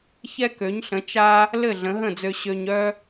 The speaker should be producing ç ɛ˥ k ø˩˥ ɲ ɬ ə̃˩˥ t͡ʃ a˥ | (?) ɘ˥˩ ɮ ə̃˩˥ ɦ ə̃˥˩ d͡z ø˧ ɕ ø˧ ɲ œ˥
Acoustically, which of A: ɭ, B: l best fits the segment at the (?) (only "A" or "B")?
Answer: B